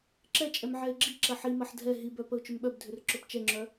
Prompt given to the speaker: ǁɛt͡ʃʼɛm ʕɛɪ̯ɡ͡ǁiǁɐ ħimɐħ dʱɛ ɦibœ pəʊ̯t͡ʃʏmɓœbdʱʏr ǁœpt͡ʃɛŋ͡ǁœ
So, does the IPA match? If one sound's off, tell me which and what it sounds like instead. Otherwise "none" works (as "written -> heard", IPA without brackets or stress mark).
none